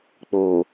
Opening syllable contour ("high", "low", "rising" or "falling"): low